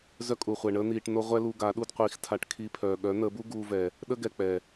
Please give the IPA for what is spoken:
z œ˦ kʼ u˨ χʷ ɛ˨ ɳ əː˦ n̪ iː˧ ʈ n o˦ ʁʷ ɛ˦ l u˧ ɡ a˨˦ ɗ u˧ d qʷ iː˨ x tʰ a˧ ʈ kʰ i˧ pʰ œː˨ ɠ œ˨˦ n̪ əː˨˦ b u˦ ɡ uː˧ v ɛ˨ | ɗ ə˦ ɡ ɛ˨ k͡p ɛ˨

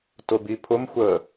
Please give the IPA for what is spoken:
t ʊ b i pʰ ʊ m xʷ əː

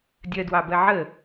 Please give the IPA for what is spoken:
dʲ ɜ d w ɑ b ɜ ʕ ə

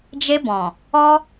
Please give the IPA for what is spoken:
d͡ʒ e˧ b ɔ̃˨ | ɔ˦

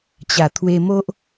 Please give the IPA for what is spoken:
t͡ɕ a˨˩ t̪ʰ w e˧ m o˦ ʔ

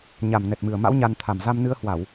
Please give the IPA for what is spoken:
ɲ a˨˩ m n ɛ˨˩ t̚ m ɨ˨˩ ə̯ m a̰˧˥ w ɲ a˧ n t̪ʰ a˨˩ m z a˧ m n ɨ˧ ə̯ h w a˧˩˨ w

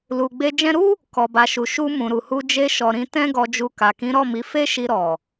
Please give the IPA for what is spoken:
l u˨ ɡ͡b e˧ d͡ʒ ɛ̃˧ ɾ u˦ | k ɔ˨ b a˨ ʃ u˨ ʃ u˧ m ũ˨ ɾ u˨ h u˧ d͡ʒ e˧ ʃ ɔ˨ ɾ ĩ˧ t ɛ̃˦ ɡ ɔ˧ d͡ʒ u˧ k a˨ k ĩ˨˦ ɾ ɔ˦˨ m i˨˦ f e˦ ʃ i˧ ɾ ɔ˨

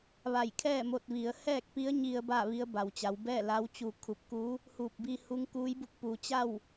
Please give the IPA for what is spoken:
ʋ a˧˩ j kʰ ɛː˥˨ m o˧ t̚ ʋ i˩˧ ə̯ h ɛː˥˨ k̚ p i˧˥ ə̯ ɲ i˧ ə̯ b aː˥˨ ʋ i˧˥ ə̯ b a˩ w t͡ɕ a˩˧ w b ɛː˥˨ l a˧˥ w t͡ɕ u˧ kʰ u˧ p̚ k uː˧˥ | h uː˧˩ p̚ b iː˧ h u˧˥ ŋ k uː˧˥ j b u˧˥ k̚ p u˩˧ t͡ɕ a˥˨ w

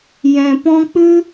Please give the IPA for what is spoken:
j ɛ̃˨ p ɔ̃˧ k͡p ɨ˦

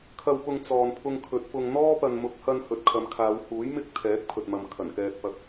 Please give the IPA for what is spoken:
kʰ ɐ˨ w p ʊ˨ ŋ t͡s ɔː˨ n pʰ ʊ˧ ŋ kʰ ɵ˨˥ t̚ p ʊ˧ ŋ n̪ ɔː˥ p ɐ˨ n m ʊ˨˥ k̚ h ɐ˧ n h ɵ˨ t̚ kʰ ɐ˨˧ m kʰ aː˨˧ w h uː˨˥ j m ɪ˧ k̚ t̪ʰ ɛː˨˥ k̚ pʰ ɵ˨ t̚ m ɐ˨ m kʰ ɐ˨˩ n k ɛː˧ t̚ p ɐ˧ k̚

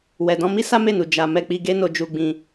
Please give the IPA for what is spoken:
w ɛ˨ d ɔ̃˧ m i˦ s a˦ m e˦˨ n u˨ d͡ʒ a˧ m ɛ˧ k͡p i˧ ɡ e˦ n o˧ d͡ʒ u˧ ɡ͡b ĩ˧

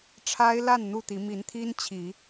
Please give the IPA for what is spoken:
ʈ͡ʂʰ a˦ ɪ̯ l a˥˨ n n̪ u˥˨ t̪ i˨˦ m i˨˦ n t̪ʰ i˦ n t͡ɕʰ i˨˦

